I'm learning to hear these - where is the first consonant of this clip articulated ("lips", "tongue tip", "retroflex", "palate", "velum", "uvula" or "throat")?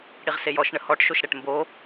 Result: retroflex